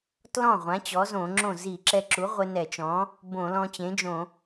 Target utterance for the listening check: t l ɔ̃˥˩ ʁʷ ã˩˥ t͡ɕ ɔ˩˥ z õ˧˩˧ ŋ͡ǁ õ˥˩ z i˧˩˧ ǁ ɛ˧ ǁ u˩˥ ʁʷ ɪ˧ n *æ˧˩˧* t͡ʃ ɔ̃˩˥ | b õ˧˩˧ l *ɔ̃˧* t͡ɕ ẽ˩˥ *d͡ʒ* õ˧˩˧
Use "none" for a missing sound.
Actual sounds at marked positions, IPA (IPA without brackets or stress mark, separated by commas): ɛ˧˩˧, ɔ̃˧, d͡ʒ